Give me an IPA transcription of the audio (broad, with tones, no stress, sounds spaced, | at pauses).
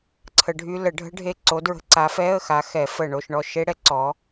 ǀʰ ə˨˦ ɖʱ y˦˥ l ə˨˩˦ ɖʱ ə̤˦˥ ɖʱ e˦˨ ǀ o˨˦ d ɹ ə̤˨˦ ǀ a˨˦ f ɛ˧˥˧ ə̯ x a˨˦ x ɛ˨˩˦ f ə˨˩ ɳ o˦˨ ʃ ɳ ɔ˦˨ ʃ e˦˥ ɽ ɛ˦˥ ǀ ɔ˨˦